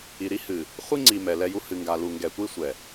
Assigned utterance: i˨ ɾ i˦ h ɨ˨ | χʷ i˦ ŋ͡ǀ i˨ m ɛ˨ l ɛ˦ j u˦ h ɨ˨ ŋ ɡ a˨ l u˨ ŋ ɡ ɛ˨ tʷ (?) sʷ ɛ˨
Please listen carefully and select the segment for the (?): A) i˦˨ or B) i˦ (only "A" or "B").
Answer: B